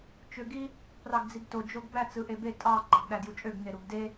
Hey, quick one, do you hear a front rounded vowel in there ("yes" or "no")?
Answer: yes